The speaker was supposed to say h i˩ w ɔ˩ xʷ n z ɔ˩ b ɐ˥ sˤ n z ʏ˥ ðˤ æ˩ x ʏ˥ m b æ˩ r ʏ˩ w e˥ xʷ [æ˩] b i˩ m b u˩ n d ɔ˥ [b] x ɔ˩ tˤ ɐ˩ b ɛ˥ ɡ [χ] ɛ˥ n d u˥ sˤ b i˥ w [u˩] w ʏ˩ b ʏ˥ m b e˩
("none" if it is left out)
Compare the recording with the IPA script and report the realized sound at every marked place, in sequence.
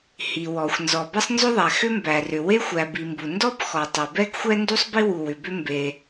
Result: æ˩, b, xʷ, u˩

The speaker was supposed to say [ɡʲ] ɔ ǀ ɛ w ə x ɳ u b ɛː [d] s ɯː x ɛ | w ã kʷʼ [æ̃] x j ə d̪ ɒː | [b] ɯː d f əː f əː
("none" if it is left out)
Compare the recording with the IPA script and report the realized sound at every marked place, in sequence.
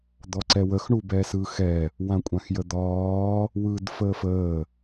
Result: d̪, none, ã, w

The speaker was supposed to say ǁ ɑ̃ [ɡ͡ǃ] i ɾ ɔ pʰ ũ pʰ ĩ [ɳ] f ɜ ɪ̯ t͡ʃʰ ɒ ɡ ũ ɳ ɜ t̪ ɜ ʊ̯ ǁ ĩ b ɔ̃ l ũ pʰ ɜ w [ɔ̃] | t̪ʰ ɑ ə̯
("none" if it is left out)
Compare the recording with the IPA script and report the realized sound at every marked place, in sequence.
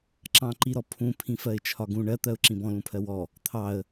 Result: ǃ, none, ɔ

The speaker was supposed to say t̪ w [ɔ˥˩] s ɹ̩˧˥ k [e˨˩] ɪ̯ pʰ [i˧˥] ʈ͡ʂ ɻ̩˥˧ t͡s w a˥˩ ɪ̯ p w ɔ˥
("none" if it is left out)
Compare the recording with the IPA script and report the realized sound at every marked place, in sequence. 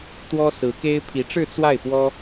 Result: ɔ˥, e˥, i˧˥

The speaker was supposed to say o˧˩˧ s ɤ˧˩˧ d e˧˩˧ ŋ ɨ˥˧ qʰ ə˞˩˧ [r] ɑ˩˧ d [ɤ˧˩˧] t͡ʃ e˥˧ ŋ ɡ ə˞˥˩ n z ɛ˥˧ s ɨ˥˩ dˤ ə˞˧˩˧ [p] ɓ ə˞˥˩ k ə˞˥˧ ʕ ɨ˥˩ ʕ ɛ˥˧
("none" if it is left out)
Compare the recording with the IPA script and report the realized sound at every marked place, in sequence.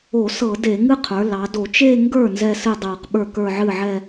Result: l, o˧˩˧, q

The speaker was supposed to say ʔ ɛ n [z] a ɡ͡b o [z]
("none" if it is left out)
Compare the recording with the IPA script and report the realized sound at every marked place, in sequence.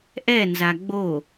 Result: z, none

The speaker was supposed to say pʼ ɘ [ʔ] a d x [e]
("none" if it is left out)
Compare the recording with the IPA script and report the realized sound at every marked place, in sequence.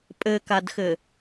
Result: k, ɘ

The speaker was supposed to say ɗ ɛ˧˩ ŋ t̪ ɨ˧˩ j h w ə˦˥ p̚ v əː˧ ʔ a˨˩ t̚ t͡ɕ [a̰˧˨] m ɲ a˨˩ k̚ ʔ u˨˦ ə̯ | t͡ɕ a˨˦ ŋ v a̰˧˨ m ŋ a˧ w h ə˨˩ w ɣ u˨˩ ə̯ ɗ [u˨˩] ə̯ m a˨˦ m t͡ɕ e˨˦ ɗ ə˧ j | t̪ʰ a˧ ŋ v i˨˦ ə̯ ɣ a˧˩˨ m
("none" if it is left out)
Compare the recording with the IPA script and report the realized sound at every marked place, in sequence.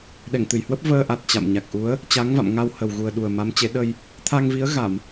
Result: a̰˧˨, u˨˩

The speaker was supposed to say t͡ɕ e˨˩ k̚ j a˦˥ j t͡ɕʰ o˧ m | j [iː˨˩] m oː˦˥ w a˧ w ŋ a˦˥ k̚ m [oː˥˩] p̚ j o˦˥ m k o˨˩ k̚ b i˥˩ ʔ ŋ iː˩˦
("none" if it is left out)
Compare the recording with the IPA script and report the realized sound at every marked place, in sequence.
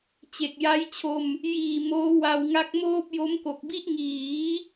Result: iː˨˩, oː˥˩

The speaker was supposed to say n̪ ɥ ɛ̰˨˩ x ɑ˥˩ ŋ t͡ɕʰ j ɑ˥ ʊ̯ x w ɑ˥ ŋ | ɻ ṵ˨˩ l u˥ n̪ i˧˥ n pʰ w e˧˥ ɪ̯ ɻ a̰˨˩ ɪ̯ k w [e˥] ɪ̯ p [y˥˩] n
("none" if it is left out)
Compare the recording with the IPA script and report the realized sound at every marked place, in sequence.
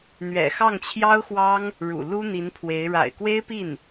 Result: e˥, i˥˩

